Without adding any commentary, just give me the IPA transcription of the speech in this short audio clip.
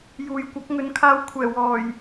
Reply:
j uː˨ j kʷ ɐ˨˥ k̚ ŋ ɵ˨˥ n kʰ aː˧ w kʷʰ ɛː˨˩ w ɔː˨˩ j

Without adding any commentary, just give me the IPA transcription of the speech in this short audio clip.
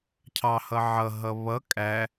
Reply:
cʰ ɑ h ʌ ʕ ʌ ɦ ʌ β ʌ kʼ æ

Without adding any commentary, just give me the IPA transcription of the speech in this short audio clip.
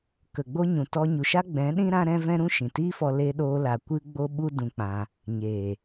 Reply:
k ə˨ ɡ͡b o˦ ɲ ũ˨ t ɔ˧ ɲ u˨ ʃ a˦ ɡ͡b ɛ̃˨˦ ɗ ĩ˦ ɾ ã˦ ɾ ɛ̃˦ v ɛ̃˦ ɾ ũ˦ ʃ ĩ˨ t iː˦ f ɔ˧ l e˧ ɗ oː˧ l a˨ kʷ ɨ˦ ɡ͡b o˦ ɓ u˦ d ũ˧ k͡p ã˧ | ɲ eː˨

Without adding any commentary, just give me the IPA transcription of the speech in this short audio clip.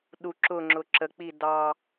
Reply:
ɗ u ǁ ʊ ŋ͡ǁ ʊ ǁ ə k͡p i d ɑ

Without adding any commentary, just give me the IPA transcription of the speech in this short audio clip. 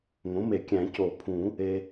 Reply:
ŋ õ˩˥ m e˨˩˦ kʲ æ̃˨˩˦ c o˨˩˦ pʰ ũ˨˩˦ | e˨

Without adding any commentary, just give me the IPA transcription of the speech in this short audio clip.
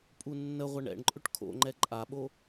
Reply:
pʼ u nː ə ʁʷ ɛ ɳ ɛ̰ ɳ ǃʼ ʏ ʈ kʰ o̰ ŋ͡ǃ ɛ ǃʼ a ɓ o

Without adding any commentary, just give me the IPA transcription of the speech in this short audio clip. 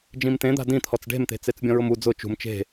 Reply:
d͡ʒ ĩ m t̪ ẽ d̪ a̤ d ĩ t̪ʰ ɔ t͡s ɖ e̤ m t̪ e̤ t͡s e t͡s bʲ ɔ̃ ɹ ʊ m u d͡z ʊ t͡ʃ ṳ m t͡ʃ e̤

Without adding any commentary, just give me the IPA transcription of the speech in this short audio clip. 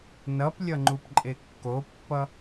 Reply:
n ʌ p lʲ ʌ ŋ͡ǃ u p ǃʼ e kː o pː ʌ

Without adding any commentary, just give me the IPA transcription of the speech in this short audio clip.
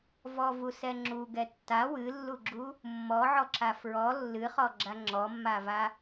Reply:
v ɔ v u s ɛ ŋ͡ǁ u ɡ ɛ tː a w ɨ lː u ɡ͡ǁ u | mː ɔ ʕ ɔ ǁ a f ɹ ɔ lː ɨ χ ɔ ɡ͡ǁ a ŋ͡ǁ ɔ mː a v a

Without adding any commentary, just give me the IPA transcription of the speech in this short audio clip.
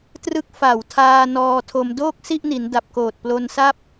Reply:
t r ɯ˥˩ k̚ f a˨˩ w tʰ aː˧ n ɔː˧ tʰ o˧ m d oː˥˩ k̚ s i˥˩ ʔ n i˩˦ n d a˨˩ p̚ k oː˨˩ t̚ p l o˧ n s a˥˩ p̚

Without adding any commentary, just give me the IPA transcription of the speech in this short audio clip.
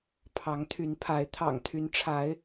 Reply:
pʰ ɑ˨˦ ŋ t̪ʰ y˨˦ n pʰ a˨˦ ɪ̯ t̪ʰ ɑ̰˨˩ ŋ t̪ʰ y˨˦ n ʈ͡ʂʰ a˨˦ ɪ̯

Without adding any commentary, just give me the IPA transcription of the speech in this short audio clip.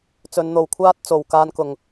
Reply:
t͡s ɵ˨˧ n n̪ o˨ w kʷʰ aː˥ t̚ t͡s o˨ w k aː˧ n k ʊ˨ ŋ

